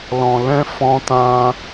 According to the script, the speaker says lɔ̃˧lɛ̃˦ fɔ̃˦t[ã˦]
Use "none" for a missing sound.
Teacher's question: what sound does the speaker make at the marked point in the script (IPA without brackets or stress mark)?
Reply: ã˦